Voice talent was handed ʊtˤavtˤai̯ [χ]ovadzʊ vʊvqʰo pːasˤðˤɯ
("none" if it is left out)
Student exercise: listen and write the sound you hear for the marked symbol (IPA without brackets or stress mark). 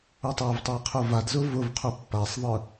qʰ